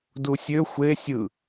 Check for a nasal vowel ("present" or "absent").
absent